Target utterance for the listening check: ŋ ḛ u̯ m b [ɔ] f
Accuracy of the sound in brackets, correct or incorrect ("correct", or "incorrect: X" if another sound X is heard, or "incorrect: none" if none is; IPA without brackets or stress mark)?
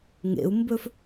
incorrect: ɵ